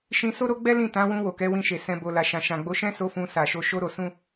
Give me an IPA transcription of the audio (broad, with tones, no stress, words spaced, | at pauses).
ʃĩ˧so˦ɾo˦ ɡ͡bɛ˦lĩ˦˨ tã˨˦ wũ˧wo˨kɛ˨˦ wĩ˧ʃe˨ sɛ̃˨bo˨ la˨ʃã˨ʃã˨ ɡ͡bo˨˦ʃɛ̃˦so˧ fũ˧sa˨ʃo˧ ʃo˦ɾo˧ sũ˦